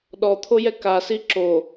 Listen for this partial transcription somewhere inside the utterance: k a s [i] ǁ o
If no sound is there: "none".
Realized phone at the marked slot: i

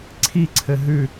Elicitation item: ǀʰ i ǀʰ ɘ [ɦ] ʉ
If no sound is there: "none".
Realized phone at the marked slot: ɦ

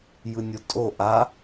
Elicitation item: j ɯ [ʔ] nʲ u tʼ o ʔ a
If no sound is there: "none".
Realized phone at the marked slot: none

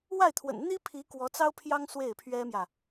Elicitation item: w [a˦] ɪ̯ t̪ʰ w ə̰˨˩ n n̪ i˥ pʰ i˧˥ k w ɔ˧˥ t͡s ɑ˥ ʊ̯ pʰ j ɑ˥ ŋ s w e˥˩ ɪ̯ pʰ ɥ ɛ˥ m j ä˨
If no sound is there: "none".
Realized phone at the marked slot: a˥˩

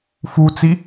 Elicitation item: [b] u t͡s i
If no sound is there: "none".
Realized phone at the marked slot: f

